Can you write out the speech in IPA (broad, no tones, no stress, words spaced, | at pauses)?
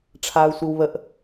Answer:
ʈ͡ʂʰaːu̯sʷiwβəʔ